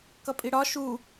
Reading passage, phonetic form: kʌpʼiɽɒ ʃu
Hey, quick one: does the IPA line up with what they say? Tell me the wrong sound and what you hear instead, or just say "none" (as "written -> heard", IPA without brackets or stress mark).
none